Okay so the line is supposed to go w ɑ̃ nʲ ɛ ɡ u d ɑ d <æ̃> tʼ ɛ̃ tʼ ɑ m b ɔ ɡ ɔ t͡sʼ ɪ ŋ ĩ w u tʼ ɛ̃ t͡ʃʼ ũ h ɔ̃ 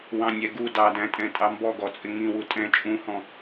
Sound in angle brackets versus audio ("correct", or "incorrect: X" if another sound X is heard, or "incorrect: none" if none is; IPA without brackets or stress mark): correct